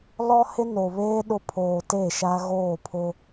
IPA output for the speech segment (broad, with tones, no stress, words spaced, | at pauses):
lɔ˦hɪ˦no˨βeː˦ ɗʊ˦ pʰoː˨te˦˨ ʃa˦ɣoː˦˨pʰʊ˦